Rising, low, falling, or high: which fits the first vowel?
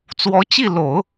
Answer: rising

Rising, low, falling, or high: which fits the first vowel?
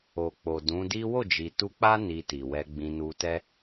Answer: low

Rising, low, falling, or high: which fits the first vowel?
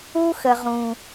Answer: high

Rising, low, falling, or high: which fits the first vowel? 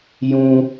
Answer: high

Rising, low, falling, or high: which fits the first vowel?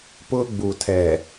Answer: high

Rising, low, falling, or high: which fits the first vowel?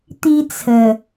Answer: high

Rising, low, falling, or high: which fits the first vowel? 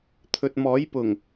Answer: low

